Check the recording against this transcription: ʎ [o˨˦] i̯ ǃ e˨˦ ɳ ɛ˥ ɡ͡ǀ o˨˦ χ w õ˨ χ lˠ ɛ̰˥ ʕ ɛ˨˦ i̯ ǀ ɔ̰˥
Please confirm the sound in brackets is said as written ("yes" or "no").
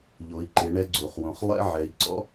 yes